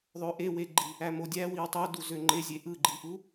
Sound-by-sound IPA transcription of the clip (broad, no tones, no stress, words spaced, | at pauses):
ðˤøʔeweɡ͡ǃi | æmodʲæwiw tˤo duzøŋ͡ǃezʲe ʔɯɡ͡ǃiʔu